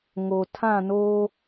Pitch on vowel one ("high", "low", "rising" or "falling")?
low